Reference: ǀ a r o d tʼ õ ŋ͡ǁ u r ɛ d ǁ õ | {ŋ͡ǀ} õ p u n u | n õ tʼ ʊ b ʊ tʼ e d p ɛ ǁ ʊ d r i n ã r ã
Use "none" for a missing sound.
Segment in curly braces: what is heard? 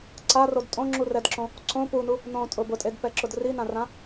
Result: ǀ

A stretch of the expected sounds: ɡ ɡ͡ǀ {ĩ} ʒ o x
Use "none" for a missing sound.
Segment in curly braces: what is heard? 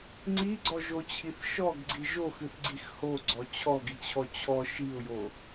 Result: i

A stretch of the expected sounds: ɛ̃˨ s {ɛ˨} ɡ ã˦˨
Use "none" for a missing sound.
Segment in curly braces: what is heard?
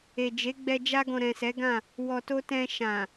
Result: ɛ˨˦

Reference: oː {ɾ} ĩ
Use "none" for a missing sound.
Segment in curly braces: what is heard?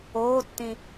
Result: tː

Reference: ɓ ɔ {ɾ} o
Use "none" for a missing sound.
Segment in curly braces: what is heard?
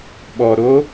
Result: ɾ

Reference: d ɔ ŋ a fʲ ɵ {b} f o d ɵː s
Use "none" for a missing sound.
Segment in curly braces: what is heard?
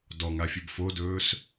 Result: b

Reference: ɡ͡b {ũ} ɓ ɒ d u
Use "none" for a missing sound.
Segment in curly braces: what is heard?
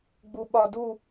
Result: u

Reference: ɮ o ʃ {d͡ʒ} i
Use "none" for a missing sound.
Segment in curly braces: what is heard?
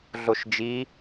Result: d͡ʒ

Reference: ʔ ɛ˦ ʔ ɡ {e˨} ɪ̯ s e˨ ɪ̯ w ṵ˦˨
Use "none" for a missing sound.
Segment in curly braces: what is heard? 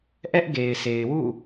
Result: e˨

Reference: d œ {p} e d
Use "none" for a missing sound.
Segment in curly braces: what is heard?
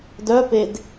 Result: p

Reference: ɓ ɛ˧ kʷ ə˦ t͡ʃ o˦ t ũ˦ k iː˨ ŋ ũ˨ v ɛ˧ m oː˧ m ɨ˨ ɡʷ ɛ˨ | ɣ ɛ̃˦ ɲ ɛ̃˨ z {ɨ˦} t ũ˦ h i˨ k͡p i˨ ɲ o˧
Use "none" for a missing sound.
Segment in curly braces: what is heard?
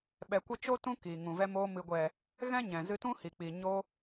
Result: ɨ˧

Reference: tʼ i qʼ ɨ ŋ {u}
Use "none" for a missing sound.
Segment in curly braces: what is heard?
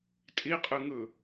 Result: ɯ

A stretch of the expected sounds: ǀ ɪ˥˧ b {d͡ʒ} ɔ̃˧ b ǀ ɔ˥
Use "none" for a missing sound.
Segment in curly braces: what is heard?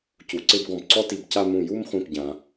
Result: ɡ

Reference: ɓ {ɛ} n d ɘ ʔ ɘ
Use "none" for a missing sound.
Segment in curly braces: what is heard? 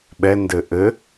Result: ɛ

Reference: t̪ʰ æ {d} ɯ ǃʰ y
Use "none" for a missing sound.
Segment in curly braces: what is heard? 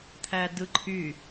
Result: d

